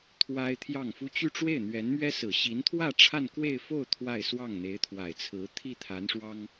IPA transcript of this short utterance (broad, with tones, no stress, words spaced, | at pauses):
t̪ʰwa˥ɪ̯t̪ʰjɑ˥˩ŋfu˥ t͡ɕy˥˧ʈ͡ʂwe˥˩ɪ̯n̪ɥɛ˧˥nmɥɛ˥ sɹ̩˨˩ɕi˧˥nt̪ʰwä˥˧ ʈ͡ʂʰa˥˧nkwe˥˧ɪ̯fo˥˧ʊ̯ t̪ʰwa˥˧ɪ̯ swɑ˥˩ŋn̪e˧˥ɪ̯t̪ʰwa˨˩ɪ̯t͡sʰɹ̩˧˥ t̪ʰi˥˩t̪ʰa˧˥nʂwɑ˥ŋ